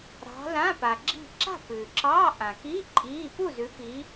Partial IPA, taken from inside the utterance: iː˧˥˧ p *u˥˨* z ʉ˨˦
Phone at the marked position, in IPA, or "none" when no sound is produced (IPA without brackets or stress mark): u˥˨